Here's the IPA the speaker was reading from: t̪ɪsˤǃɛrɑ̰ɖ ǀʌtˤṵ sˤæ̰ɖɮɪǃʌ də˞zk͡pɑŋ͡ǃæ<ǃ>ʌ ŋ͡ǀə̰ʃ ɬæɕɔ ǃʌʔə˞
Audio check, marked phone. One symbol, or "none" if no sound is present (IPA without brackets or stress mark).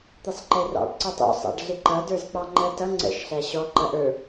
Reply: t